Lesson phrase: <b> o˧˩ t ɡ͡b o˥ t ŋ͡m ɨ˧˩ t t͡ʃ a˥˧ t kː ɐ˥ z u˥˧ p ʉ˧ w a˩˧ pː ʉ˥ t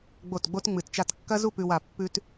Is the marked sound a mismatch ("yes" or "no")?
yes